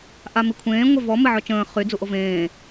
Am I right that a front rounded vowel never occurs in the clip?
no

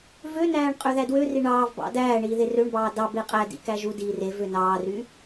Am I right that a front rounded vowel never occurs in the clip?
no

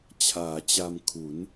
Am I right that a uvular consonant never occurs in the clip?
yes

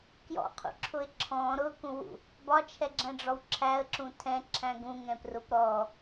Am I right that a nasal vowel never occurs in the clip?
no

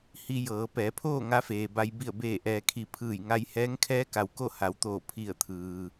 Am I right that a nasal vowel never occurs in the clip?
yes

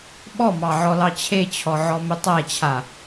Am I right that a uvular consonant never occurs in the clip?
yes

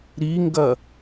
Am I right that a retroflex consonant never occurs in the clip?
yes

